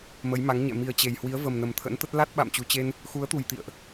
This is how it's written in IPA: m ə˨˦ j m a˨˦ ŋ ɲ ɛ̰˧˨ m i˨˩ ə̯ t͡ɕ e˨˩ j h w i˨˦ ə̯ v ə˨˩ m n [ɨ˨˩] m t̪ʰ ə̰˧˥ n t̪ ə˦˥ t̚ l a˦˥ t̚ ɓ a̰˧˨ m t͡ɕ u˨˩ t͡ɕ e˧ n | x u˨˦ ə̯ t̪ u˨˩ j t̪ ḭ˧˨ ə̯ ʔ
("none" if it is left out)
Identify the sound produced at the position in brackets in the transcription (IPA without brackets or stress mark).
ə˨˩